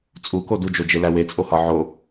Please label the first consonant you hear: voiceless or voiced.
voiceless